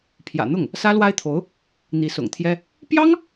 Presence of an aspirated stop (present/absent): present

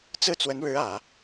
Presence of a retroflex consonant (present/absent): present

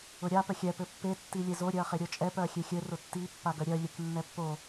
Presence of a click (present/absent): absent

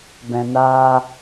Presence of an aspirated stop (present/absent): absent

